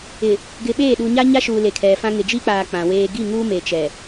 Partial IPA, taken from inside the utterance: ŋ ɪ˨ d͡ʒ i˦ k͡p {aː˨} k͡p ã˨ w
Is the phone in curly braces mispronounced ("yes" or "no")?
no